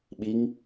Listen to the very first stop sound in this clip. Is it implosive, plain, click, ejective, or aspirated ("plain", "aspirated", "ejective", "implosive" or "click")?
implosive